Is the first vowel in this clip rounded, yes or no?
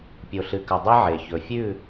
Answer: yes